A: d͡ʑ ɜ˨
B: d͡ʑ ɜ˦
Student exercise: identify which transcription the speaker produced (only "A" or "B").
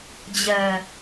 A